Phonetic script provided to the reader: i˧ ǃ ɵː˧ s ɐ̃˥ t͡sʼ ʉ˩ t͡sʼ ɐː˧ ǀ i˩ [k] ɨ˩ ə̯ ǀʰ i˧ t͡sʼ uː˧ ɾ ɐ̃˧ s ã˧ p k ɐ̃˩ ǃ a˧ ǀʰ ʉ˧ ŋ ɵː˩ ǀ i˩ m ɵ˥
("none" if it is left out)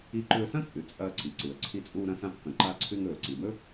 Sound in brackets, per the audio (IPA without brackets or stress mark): ǀ